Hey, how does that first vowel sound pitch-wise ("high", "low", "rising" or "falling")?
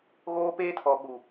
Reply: high